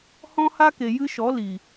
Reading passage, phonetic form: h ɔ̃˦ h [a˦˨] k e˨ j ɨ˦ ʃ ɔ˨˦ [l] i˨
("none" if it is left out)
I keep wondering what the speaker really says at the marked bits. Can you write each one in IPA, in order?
a˦, l

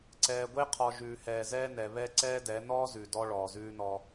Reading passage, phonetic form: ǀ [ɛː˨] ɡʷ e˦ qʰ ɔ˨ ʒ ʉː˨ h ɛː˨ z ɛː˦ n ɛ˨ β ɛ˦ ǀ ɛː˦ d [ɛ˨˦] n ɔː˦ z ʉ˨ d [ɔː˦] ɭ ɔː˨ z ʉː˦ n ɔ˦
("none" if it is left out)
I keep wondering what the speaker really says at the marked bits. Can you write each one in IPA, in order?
ɛː˨, ɛ˨˦, ɔ˦

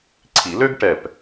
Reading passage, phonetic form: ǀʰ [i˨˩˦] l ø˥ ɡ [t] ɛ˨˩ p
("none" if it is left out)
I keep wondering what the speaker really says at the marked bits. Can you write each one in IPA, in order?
i˨˩˦, ʈ

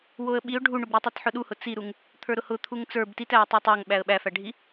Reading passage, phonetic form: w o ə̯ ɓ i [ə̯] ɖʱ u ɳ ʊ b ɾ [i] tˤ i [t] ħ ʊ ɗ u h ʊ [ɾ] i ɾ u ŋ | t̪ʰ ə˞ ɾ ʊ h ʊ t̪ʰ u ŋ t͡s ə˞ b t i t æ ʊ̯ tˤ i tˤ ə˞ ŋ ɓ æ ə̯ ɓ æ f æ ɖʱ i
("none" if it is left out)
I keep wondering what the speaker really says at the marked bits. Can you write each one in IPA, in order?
ʊ̯, i, t, t͡s

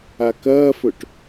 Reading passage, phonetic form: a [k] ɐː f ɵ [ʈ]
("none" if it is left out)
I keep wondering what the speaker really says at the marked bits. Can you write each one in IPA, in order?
k, ʈ

